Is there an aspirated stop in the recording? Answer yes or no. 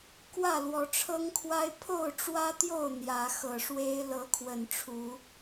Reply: yes